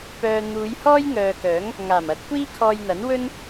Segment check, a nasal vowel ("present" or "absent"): absent